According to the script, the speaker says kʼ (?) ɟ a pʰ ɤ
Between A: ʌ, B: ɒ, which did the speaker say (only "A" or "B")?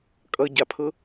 A